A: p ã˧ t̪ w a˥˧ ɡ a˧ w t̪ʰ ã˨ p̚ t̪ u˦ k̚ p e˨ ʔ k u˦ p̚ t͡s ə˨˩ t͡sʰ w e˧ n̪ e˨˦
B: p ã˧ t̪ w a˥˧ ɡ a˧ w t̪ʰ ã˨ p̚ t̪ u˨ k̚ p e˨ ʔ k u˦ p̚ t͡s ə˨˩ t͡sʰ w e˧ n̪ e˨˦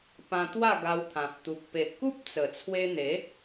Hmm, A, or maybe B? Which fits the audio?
B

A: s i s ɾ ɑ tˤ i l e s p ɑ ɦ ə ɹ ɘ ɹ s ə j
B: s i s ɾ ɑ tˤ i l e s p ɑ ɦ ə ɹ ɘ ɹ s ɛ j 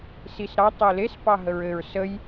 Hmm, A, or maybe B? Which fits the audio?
A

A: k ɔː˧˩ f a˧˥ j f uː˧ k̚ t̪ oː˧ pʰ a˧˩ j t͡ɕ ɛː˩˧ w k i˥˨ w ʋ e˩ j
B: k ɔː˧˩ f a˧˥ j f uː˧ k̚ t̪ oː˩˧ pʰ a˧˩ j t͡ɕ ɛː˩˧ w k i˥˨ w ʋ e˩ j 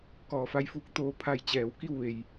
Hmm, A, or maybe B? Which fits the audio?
A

